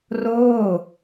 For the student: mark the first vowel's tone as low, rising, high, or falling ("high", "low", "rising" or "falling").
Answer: falling